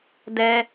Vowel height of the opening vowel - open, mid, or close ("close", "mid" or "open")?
mid